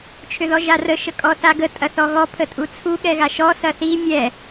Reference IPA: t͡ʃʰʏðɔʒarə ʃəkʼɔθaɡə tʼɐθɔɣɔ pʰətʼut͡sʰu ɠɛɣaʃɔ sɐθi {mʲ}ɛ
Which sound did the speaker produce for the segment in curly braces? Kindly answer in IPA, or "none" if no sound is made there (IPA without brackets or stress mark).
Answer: mʲ